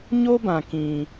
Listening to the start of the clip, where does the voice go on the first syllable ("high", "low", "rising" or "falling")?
high